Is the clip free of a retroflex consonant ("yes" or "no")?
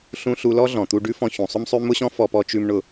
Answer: no